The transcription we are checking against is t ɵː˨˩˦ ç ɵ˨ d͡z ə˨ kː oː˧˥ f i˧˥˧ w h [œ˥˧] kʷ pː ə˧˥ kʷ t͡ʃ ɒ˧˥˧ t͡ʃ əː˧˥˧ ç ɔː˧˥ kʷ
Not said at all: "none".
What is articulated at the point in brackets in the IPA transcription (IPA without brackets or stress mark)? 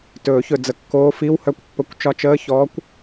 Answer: œ˥˧